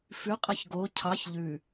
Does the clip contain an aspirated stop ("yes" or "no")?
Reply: yes